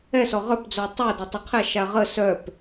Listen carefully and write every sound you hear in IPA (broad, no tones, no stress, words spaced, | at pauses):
ɛsɔ ʁœpd͡zɔ tˤœdɛ tˤəqʰɛʃa ʁə sœp